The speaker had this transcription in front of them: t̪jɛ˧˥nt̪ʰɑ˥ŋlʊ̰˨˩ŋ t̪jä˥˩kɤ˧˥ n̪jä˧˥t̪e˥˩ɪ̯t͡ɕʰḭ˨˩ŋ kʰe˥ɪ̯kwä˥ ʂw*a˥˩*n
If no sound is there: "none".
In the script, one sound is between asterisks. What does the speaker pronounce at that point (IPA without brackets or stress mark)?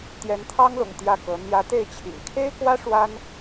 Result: a˥